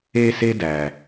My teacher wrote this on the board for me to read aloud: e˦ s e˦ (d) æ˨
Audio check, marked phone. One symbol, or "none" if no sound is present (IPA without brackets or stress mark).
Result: d